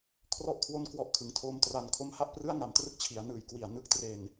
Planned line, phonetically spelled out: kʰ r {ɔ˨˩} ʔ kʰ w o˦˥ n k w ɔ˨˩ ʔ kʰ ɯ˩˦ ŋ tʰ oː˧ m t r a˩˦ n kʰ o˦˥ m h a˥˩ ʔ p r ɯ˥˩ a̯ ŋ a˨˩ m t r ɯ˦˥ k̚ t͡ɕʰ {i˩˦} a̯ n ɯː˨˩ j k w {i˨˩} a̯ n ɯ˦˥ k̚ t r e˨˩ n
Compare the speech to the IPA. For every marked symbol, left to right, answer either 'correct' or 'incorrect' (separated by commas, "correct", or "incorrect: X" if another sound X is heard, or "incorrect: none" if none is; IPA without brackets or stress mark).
incorrect: ɔ˥˩, correct, correct